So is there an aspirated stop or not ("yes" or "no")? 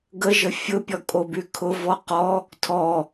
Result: yes